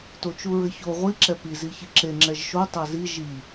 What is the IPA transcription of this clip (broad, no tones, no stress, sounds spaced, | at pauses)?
t o t͡ʃ u ɹ ɘ ç o ʁʷ i ǁ ɛ p i z i ç i ǁ e ŋ͡ǁ ɛ ʒ ʃ o tˤ a z i ʒ i